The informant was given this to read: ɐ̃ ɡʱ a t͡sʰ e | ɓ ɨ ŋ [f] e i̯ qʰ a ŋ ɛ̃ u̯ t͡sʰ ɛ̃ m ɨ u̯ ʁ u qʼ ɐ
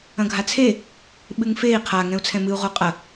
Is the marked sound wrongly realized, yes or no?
no